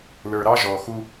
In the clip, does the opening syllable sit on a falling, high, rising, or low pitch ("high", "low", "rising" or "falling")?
low